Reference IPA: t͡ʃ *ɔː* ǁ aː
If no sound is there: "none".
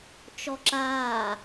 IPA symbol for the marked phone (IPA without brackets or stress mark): ɔ